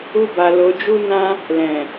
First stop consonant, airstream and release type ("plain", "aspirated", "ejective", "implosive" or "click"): plain